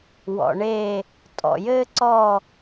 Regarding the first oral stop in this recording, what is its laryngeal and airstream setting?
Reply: ejective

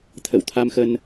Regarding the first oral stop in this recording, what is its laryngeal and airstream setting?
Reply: aspirated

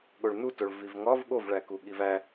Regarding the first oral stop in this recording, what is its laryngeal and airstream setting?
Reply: implosive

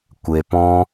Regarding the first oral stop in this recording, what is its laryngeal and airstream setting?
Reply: plain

